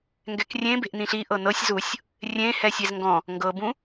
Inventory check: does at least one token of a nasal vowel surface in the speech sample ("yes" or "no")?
yes